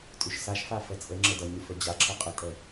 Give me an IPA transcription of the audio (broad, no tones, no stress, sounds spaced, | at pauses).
tʼ y ʃ s a ʃ f a f ɛ t͡sʼ ə ŋ͡ǁ ə d ʌ ɲ y f ə d͡ʑ a ǁʰ ʌ qʼ ə tʼ ɛ